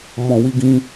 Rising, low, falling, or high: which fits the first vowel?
low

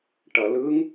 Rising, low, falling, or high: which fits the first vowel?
low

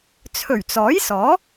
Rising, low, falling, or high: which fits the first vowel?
low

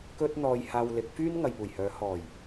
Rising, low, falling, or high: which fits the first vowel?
high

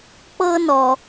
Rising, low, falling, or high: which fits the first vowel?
high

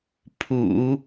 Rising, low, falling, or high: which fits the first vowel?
low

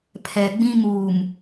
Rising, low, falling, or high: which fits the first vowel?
low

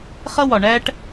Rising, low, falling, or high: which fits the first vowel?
high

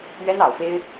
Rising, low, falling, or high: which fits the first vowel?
high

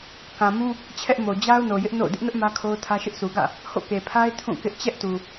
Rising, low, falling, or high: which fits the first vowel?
low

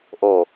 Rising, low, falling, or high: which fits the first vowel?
falling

